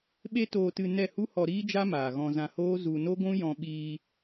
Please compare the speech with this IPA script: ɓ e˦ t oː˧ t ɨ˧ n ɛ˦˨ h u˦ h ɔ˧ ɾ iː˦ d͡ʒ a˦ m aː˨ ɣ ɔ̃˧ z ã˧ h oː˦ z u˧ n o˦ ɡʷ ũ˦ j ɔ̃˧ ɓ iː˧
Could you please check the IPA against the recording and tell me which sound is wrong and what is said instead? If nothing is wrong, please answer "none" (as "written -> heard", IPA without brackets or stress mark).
none